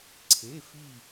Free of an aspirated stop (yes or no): no